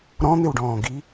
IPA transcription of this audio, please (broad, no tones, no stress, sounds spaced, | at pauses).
ɾ ɔ̃ n̪ ɪ w ɖ ɔ̃ː ɡ i